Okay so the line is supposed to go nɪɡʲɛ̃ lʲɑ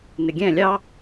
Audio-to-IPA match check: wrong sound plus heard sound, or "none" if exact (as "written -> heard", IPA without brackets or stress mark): none